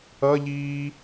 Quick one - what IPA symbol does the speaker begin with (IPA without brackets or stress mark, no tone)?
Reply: ʌ